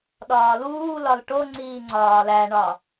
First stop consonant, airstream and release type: implosive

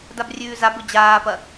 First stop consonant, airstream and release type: plain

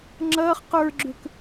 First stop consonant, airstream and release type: click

